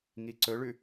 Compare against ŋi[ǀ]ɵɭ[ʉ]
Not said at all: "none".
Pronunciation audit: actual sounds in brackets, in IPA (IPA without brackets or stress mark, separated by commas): ǀ, ʉ